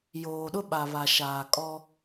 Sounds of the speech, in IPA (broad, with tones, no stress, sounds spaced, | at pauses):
j oː˨ ɗ ʊ˦ ɓ a˨ β a˨ ʃ aː˨ kʼ ɔ˦